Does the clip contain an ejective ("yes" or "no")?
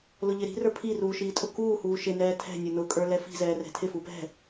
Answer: yes